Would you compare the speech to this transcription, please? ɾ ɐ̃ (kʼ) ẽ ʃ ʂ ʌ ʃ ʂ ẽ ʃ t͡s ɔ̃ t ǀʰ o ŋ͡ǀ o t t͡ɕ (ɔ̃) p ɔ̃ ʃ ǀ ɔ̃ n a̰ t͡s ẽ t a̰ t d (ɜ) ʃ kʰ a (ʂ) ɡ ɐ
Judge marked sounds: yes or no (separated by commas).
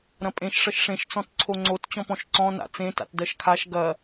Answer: no, yes, yes, no